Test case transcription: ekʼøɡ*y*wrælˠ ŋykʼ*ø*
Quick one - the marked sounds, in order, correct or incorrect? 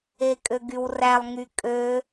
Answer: correct, correct

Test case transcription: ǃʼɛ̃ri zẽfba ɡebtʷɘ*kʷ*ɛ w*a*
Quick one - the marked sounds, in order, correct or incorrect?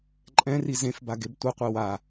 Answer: incorrect: qʷ, correct

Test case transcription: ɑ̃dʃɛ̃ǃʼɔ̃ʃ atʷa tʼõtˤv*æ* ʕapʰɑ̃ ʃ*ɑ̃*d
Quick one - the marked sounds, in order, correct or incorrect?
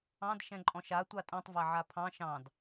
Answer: correct, correct

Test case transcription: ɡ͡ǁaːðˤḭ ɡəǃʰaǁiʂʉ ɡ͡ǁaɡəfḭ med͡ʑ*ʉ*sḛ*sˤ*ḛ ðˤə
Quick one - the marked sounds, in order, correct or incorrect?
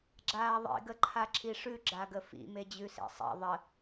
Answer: correct, correct

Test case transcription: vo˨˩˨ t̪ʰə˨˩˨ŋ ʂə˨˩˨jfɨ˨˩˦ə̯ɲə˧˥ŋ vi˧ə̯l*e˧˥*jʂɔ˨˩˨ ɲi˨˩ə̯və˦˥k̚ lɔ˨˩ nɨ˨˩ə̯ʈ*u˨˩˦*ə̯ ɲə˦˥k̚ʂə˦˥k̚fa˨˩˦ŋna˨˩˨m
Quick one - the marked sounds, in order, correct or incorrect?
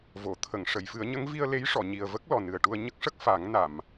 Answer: correct, incorrect: u˧

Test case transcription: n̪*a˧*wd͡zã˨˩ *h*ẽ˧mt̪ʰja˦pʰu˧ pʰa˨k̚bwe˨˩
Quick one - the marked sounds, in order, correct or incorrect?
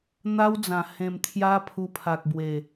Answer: incorrect: a˦, correct

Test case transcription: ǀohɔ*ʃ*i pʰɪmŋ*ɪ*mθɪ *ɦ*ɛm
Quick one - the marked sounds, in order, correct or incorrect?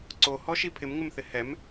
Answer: correct, correct, incorrect: h

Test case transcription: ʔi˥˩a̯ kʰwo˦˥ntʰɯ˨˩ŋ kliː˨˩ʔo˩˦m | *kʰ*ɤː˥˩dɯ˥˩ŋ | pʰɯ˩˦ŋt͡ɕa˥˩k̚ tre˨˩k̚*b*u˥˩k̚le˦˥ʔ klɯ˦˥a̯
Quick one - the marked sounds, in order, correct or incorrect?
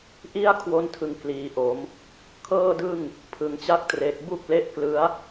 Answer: correct, correct

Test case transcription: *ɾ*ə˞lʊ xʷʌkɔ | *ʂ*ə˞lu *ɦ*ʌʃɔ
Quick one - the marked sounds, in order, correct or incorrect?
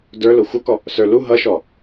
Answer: incorrect: d, incorrect: s, correct

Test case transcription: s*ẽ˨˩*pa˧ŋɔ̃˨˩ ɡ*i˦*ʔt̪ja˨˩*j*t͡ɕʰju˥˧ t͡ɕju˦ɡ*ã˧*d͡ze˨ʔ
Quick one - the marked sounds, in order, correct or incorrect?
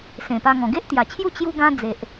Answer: correct, incorrect: e˦, incorrect: none, incorrect: ã˦

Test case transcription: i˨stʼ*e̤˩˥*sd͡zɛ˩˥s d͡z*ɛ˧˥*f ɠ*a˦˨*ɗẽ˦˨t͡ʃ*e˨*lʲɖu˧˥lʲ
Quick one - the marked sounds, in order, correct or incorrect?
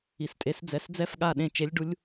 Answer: incorrect: e˩˥, correct, correct, incorrect: e˧˥

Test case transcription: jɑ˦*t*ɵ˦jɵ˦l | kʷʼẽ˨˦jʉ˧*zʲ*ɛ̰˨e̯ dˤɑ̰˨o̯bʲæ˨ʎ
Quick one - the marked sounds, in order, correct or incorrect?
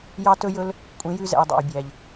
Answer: correct, incorrect: z

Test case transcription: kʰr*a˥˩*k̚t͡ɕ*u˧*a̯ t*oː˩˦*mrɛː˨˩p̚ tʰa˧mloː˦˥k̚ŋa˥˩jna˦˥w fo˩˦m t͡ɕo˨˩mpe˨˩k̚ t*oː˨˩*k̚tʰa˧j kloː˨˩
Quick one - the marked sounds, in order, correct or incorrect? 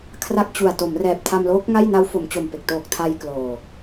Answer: correct, incorrect: u˨˩, incorrect: o˩˦, correct

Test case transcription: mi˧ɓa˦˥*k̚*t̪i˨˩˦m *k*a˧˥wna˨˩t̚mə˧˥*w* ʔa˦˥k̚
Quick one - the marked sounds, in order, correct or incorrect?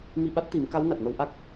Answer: incorrect: t̚, correct, correct

